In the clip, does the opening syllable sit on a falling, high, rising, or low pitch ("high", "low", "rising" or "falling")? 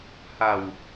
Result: low